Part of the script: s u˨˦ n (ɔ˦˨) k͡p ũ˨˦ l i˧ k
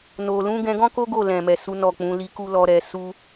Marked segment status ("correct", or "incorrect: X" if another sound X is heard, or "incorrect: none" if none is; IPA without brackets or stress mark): correct